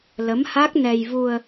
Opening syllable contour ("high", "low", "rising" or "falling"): rising